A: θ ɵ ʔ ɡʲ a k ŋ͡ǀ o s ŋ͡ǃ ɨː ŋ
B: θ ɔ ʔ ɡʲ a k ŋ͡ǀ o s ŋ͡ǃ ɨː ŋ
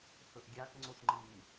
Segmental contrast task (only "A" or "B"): A